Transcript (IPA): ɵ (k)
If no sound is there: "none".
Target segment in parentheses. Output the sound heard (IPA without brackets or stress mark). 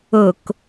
k